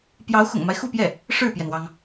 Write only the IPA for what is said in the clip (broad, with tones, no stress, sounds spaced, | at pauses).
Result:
p j ɑ˧˥ ʊ̯ x ʊ̰˨˩ ŋ m a˦ ɪ̯ x u˥˧ p j ɛ˥˩ | ʂ ɻ̩˥˩ p j ɛ˩ n w ɑ˩ ŋ